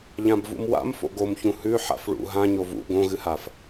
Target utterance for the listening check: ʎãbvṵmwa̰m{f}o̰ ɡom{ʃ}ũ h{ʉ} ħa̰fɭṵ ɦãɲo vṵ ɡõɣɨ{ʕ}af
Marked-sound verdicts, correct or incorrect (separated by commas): correct, incorrect, correct, incorrect